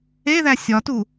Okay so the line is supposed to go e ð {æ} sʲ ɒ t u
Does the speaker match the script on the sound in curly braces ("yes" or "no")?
yes